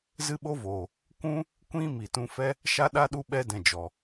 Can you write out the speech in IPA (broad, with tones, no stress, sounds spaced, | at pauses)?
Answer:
z ɨ˦ ɓ o˦ v oː˨ | kʷ ũ˦ | kʷ ĩ˦ m i˨ t ũ˧ f ɛ˦ | ʃ a˦ ɗ a˦ ɗ u˧ ɓ ɛ˧ d ɛ̃˨ d͡ʒ ɔ˨